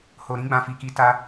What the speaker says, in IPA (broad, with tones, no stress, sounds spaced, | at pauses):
h o˧ ɾ ĩ˦ ɡ͡b ã˧ f i˧ k i˧ t a˦